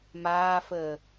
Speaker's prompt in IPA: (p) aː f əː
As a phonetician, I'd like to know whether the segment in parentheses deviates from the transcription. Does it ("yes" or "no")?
yes